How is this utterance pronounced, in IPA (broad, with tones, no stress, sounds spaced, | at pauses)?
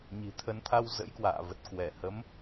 ɲ i̤˨˩ t̪ʰ ə˨˦ n t̪ʰ a˧ w z ə̰˧˥ j k w a̰ː˧˨ v ə˨˩ t̚ k w ɛ˧˩ h ə˨˦ m